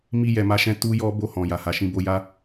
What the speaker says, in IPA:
m i˧ j ɛ˨ m a˧ ʃ ɛ̃˧ t u˦ j ɔ˦ b o˦˨ h ɔ̃˨ j a˨ h a˨ ʃ ĩ˧ b o˧ j a˦

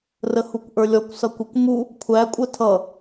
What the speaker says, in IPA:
r ə h u kʷ ʔ ə˞ lʲ ɔ kʷ s ʌ kʷ ə kʷ m u | kʷʰ æ kʷʼ ə tʰ ʌ

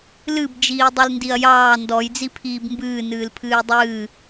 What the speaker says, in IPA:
l ɨ b d͡ʒ iː dˤ ɨ l n d i ɐ̯ j ɑː n d ɔ j d͡z i pʰ iː b m b ɨː n ɨː l pʰ ɨː j dˤ ɨː

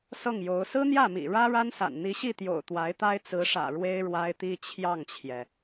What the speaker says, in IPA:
s ɤ˥˩ ŋ j o˧˥ ʊ̯ s ɹ̩˥ n̪ j ä˥˩ m ḭ˨˩ ɻ ä˥ ɻ a˥ n s a̰˨˩ n n̪ i˧˥ ɕ i˥˩ t̪ j o̰˨˩ ʊ̯ t̪ w a˧˥ ɪ̯ t̪ a˥ ɪ̯ t͡s ɹ̩˧˥ ʂ ä̰˨˩ ɻ w e˥ ɪ̯ ɻ w a˥ ɪ̯ t̪ i˥ t͡ɕʰ j ɑ˥˩ ŋ t͡ɕʰ j ɛ˩

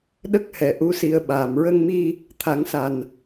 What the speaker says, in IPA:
ɗ ə˦˥ k̚ h ɛ˨˩ ʔ u˧˥ s i˧ ə̯ ɓ aː˨˩ m ɹ ə˧ ŋ m i˧ | t̪ʰ a˨˩˦ ŋ s a˨˩ n

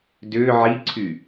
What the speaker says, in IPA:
d ʏː ʕ i ǀʰ y

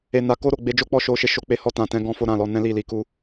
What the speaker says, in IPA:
e˨ n a˨ k o˧ ɾ o˨ ɡ͡b e˧ d͡ʒ o˦ k͡p ɔ˦ ʃ o˧ ʃ e˧ ʃ o˧ k͡p e˧ h ɔ˧ t ã˨ t ɛ̃˧ ɡ ɔ̃˦ f o˦ ɾ ã˦˨ l ɔ˧ n ɛ̃˦ l i˦˨ l i˧ k u˦

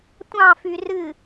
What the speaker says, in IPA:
tʷ ɑ̃ f y r ɨ

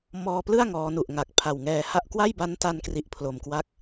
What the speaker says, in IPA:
m ɔː˧ p l ɯ˥˩ a̯ ŋ ɔː˦˥ n u˨˩ ʔ ŋ a˨˩ k̚ pʰ a˨˩ w ŋ ɛː˧ h a˥˩ ʔ k w a˥˩ j b a˦˥ n t a˧ n k r i˦˥ ʔ pʰ l o˧ m k w a˥˩ k̚

